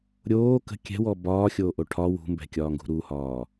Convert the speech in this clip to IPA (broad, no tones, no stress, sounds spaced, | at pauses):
ɾʲ oː k ə̤ kʲ ɛ̤ w ɔ b ɒː xʲ oː ʔ o ʈʰ ɒ w ṳ m b ɛ̤ kʲ ɒː ŋ ɡ ṳ ɾ u h ɒː